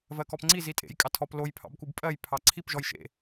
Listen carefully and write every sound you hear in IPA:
v ɜ k ɔ p ŋ͡ǀ i z i tʼ ḛ j kʼ ɑ tʰ ɔ p l o j pʰ ɑ̰ b k u b pʼ ɜ j pʰ ɑ ǀʰ i p ʒ ɔ j ʃ ḛ

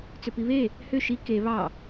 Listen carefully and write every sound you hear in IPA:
t͡s ʏ p i β e | h ʏ ʃ i k e β ɑ

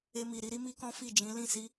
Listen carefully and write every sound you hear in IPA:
e˧ m i˨ ɾ i˨˦ ɾ i˦ m i˦ k ɔ̃˦ f i˦˨ d͡ʒ ĩ˨˦ l ĩ˦˨ s i˨˦

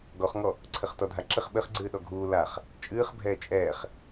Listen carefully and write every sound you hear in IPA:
ɡ ɔ χ ŋ ɔ | ǀʰ ɘ χ t ɔ dʱ a ǁ ɘ χ ɓ ɘ χ ɡ͡ǀ ɨː ɗ ɔ ɡʱ uː l a χ | t͡ʃʼ ɨː χ bʱ ɛː t͡ʃʼ ɛː χ

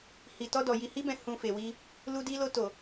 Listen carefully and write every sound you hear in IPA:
h i˨ t ɔ˧ d ɔ˨ j i˨ h i˧ b ɛ̃˨ h ũ˨ f e˨ w i˧ | l u˧ d i˧ l o˧ t o˨

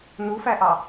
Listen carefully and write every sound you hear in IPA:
n u f æ ʔ ɑ

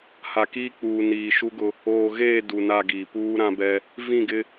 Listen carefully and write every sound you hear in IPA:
h a˨ k iː˦ k͡p uː˨ n iː˨ ʃ u˦ ɡ ʊ˦ | oː˨ ɣ eː˦˨ d u˨ n a˦˨ ɡ iː˨ p uː˦ ɾ ã˦ b ɛ˦ | v ĩ˦˨ ɡ ɪ˦

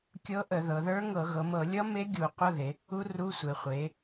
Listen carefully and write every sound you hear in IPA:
kʲ ɤ˦˥ ʔ ə˧˩˧ ð ɤ˩˧ ð ə˞˦˥ ŋ ɤ˧˩˧ ɣ ɤ˩˧ m ɤ˧˩˧ lʲ ʌ˦˥ m e˦˥ ɡʲ u˧˩˧ qʷ ʌ˧˥˧ ð e˩˧ | u˦˥ r u˧˥˧ sʷ e˩˧ χʷ e˩˧

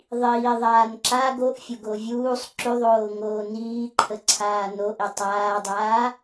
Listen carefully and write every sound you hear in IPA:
ðˤ iː ðˤ aː n ǁ a ɡ o ʔ fʲ o ɡ o vʲ uː sˤ ǁ y ðˤ oː ŋ oː n iː ǃʰ ə ǀʰ aː n o ʔ i tˤ aː dˤ aː

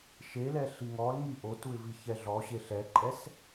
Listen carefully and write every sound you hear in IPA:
ʃ e l ɛ ɬ i ŋ ɔ l ŋ i ʔ o t u ɪ̯ v i ç ɛ ɮ ɔ ɕ e ɬ ɛ ǃʼ ɛ s

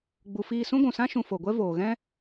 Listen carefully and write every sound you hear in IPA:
ɡ͡b u˨ f iː˦˨ s ũ˦ ɡʷ ũ˨ s ã˦ ʃ ũ˧ f o˨ ɡʷ ɛ˦ v oː˨ ɣ ɛ̃˦

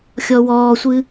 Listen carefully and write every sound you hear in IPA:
xʲ ɔ w ɔː sʷ ɨ

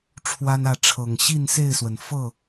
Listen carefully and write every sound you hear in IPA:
ʈ͡ʂʰ w a˦ n ä˥˨ ʈ͡ʂʰ ɤ˨˩ ŋ ɕ i˥˨ n s e˥˨ ɪ̯ s w ə˩ n f ɤ˥˨

